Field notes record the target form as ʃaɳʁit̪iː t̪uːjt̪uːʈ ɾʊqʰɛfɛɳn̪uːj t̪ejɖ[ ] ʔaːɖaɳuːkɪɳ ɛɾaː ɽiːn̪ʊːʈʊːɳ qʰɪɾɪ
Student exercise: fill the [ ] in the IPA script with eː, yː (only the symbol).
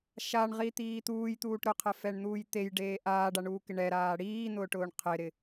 eː